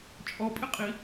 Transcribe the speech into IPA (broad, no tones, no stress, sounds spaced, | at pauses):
t͡ʃʼ ɔ pʼ ɪ qʼ i